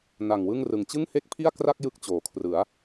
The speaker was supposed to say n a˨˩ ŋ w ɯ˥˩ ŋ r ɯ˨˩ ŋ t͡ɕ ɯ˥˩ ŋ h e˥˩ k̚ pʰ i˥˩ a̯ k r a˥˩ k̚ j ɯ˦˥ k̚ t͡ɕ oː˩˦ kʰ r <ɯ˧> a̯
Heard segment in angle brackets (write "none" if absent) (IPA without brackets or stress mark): ɯ˩˦